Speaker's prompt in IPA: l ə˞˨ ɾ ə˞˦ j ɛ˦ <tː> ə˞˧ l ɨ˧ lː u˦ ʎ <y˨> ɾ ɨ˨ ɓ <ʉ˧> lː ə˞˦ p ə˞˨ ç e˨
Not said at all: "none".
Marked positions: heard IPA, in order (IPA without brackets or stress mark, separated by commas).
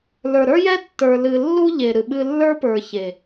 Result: tː, e˨, ɨ˧